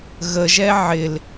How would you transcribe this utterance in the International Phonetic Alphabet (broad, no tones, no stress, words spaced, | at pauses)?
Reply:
ɣəʒɛ ʕɪl